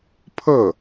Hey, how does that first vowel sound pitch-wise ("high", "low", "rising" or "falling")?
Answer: falling